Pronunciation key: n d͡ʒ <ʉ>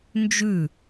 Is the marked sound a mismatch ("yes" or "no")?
no